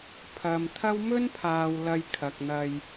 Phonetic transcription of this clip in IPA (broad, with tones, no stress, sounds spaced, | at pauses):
pʰ ɐ˨ m t̪ʰ ɐ˥ w m ɵ˥ n pʰ aː˨ w l ɐ˧ j kʰ ɐ˨ k̚ n̪ ɐ˧ j